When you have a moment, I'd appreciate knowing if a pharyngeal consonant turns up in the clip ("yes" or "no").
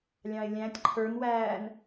no